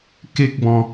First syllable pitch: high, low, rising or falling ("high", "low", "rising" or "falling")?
high